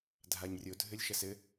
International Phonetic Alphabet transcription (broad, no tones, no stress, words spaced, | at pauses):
dʱaɲrʲo dʱɘlʲʃɐsɘ